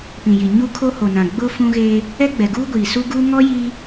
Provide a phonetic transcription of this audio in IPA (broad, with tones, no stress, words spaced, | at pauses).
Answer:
pĩ˨ji˨ ɲu˦ kʰo˦ho˨nã˨ ɡ͡bʊ˦ fũ˦ɣeː˦ | ɛ˦ɡ͡bɛ˨ɡuː˦ɡʷiː˨ su˦ɡuː˦ ŋɔ˦ jiː˦